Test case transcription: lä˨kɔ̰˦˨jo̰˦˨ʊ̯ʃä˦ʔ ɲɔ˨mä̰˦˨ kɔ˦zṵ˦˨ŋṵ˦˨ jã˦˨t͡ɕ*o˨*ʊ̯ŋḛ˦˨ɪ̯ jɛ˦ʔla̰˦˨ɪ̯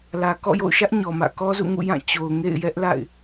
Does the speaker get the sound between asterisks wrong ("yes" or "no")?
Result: no